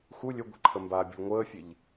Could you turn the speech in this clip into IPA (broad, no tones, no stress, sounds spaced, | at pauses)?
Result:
x u lʲ ɵ ɡʷ e̤ ǃʰ ə m b aː bʲ e̤ ɭ ŋʷ əː fʲ e ʎ